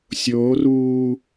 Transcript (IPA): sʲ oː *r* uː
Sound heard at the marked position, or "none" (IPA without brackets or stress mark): r